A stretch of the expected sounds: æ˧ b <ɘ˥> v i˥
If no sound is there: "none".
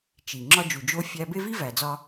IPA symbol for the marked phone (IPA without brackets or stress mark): e˥